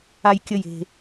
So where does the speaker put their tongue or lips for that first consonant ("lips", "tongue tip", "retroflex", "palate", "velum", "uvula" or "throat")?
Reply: palate